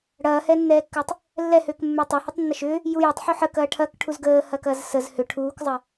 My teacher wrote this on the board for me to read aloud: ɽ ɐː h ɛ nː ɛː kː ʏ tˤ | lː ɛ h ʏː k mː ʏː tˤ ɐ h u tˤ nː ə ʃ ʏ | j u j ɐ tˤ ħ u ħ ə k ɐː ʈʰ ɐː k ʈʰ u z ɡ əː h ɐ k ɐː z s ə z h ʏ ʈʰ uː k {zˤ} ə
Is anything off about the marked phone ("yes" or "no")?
no